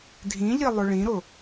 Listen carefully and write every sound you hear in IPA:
dʱĩʎi lˠʊɭĩɾʊ

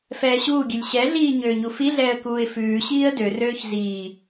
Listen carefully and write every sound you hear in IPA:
fɛːɕuːɡʲʉlʲ ɕɛɮiː ɲøːɲufiɮɛːə̯ kuːɪ̯fʉːɕiːə̯ dørøːç ziː

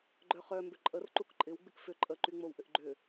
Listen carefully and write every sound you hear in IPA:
ɡ͡ǃœχœ mbʏǃʼər ǃukǃʼɪw ɡ͡bɪkfʏ ǃʼə ǃyŋ͡mowʔʏʔɡ͡ǃʏ

